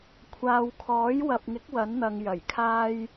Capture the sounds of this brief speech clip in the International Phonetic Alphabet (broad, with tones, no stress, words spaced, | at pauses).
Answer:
kʷʰaː˨wkʰɔː˨˥jwɐ˨p̚ŋɪ˨˥k̚ wɐ˨˥nn̪ɐ˨ŋ jɐ˨˩j kʰaː˧j